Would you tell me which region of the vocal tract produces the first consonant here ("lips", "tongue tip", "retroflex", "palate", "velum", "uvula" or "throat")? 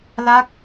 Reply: tongue tip